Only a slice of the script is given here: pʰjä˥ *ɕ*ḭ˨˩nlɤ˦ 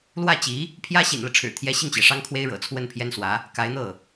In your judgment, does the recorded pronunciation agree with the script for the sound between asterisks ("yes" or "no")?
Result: yes